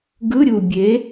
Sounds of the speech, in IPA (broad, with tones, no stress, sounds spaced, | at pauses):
ɡ ɯ˧˥˧ ɾʲ u˨˩ bʲ e˨˥